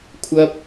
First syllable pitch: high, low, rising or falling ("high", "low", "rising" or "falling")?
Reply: high